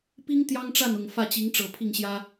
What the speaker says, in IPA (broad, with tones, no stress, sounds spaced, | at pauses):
p i˥ ŋ t̪ j ɑ˥ ŋ ʈ͡ʂ a˥˩ n ʊ˨˩ ŋ f ä˥˩ t͡ɕ i˧˥ ŋ ʈ͡ʂ ɤ˨˩ pʰ i˥˩ ŋ ɕ j ä˥